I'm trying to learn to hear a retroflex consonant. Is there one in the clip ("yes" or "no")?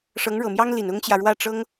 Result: yes